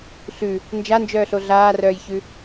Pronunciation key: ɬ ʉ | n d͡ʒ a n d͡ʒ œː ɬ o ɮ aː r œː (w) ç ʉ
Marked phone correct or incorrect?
incorrect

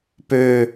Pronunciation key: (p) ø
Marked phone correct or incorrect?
correct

